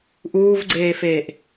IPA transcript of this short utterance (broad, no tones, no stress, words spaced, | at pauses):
ʔuːvɡ͡ǀeːfeːʔ